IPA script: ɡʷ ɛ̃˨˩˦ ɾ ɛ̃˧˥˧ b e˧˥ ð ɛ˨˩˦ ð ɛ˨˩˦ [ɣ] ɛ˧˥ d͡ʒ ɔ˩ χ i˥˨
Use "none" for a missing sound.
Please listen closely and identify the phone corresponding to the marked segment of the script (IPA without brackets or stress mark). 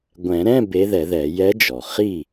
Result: j